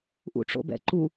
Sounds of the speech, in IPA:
ʔ ṵ ʈ͡ʂ o̰ b ɛ̰ ǃ u

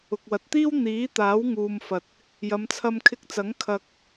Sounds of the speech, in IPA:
ʊ˨ k̚ w ɐ˨ t̚ t̪ iː˥ w n̪ iː˨˥ t̪ aː˨˥ w ŋ uː˧ m f ɐ˧ t̚ | j ɐ˨˧ m t͡sʰ ɐ˧ m kʰ ɪ˧ k̚ t͡s ɐ˨˥ ŋ kʰ ɐ˧ k̚

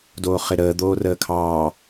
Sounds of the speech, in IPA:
d oː χ ɪ ɾ əː d̪ oː r əː kʰ ɑː

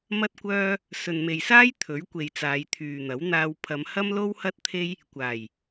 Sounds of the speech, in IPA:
m ɐ˥ t̚ kʷ œː˥ | s ɵ˨ n m e˨ j s aː˥ j t̪ʰ ɵ˨˥ ɥ kʷ e˨ j t͡s aː˨˧ j t̪ʰ yː˨ n̪ ɐ˨˥ w n̪ aː˧ w pʰ ɐ˨˧ m h ɐ˥ m l o˥ w h ɐ˥ t̚ t̪ʰ e˥ j | kʷ aː˨˩ j

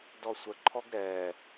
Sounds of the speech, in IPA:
d ɔ sʷ ə ǃʰ ɔ ɡ ɾ ɛ

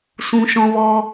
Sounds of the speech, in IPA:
s ũ˧ ʃ ɔ̃˧ v ɔ˦

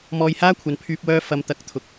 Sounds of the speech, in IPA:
m ɔː˧ j h aː˥ kʷʰ ɐ˨ n pʰ yː˧ p̚ w œː˧ f ɐ˧ m t̪ ɐ˨˥ k̚ t̪ʰ ʊ˨ k̚

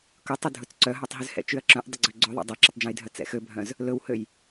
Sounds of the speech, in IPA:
k ɵ tˤ ʉ dʱ ɵ t͡s ǀ œ ɦ œ tˤ ɦ ʉ z h ɛ̰ t͡ʃ y ɐ̯ ǁ œ̃ ʔ dˤ ɵ ɡ͡ǀ ø ɡ͡ǀ ø ðˤ ɛ̰ dˤ ɛ ǁ ɛ tˤ d͡ʒ ɛ̃ j dʱ œ t͡s ɛ̰ x ø bʱ œ̃ z | l ɵ w h ø j

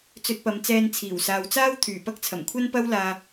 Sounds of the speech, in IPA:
t͡s ɵ˧ t̚ p ɐ˨˧ m t͡s ɛː˧ n t͡sʰ iː˨˩ w s aː˨ w t͡s aː˥ w t̪ʰ yː˨˩ p ɐ˥ k̚ t͡sʰ ɐ˨˩ m kʷʰ ɐ˥ n p ɐ˥ w l aː˧

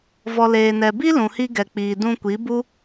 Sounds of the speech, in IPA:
v ɔ˨ l eː˨ n ɛ˨ b i˦ l ũ˨ h i˧ ɡ ɛ˨ k͡p iː˨ d ũ˧ kʷ i˨˦ b u˦

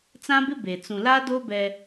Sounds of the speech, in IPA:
t͡s ã˦ b ɪ˦ b e˨ t͡s ũ˨ l a˦ d o˦ b ɛ˦

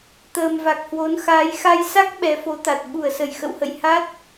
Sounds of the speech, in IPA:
t̪ əː˨˩ m v a˨˩ k̚ h w o˨˦ n x aː˨˦ j x a˧ j s a˦˥ k̚ ɓ ɛ˨˦ f o˨˦ t̪ a˨˩ t̚ ɓ u˧˩ ə̯ s ə˧˩ j x ə̰˧˨ w h ə̰˧˨ j h a˦˥ t̚

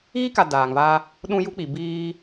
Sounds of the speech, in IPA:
ɣ i˦ k a˨ d aː˨ ŋ v a˦ | ɗ ũ˦ j u˦ k͡p i˨ b iː˦

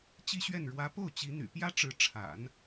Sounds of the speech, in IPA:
t͡ɕ i˥˧ ɕ ɥ ɛ˥˩ n ɻ w ä˧˥ p o˥˩ ʊ̯ t͡ɕ i˧˥ n̪ y̰˨˩ p j ä˥ ʈ͡ʂ ɻ̩˧˥ ʈ͡ʂʰ a̰˨˩˦ n

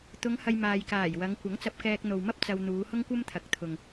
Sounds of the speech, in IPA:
t̪ ʊ˨˧ ŋ h ɐ˧ j m aː˨ j k aː˨˩ j w ɐ˨˧ ŋ kʷ ɐ˨˥ ŋ t͡s ɐ˧ p̚ k ɛː˧ k̚ n̪ o˨ w m ɐ˥ p̚ t͡s ɐ˧ w n̪ uː˨˧ h ʊ˥ ŋ kʷ ɐ˥ m t̪ʰ ɐ˨˥ k̚ t̪ʰ ʊ˨ ŋ

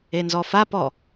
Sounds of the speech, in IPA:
e n z ɔ f a p ɔ

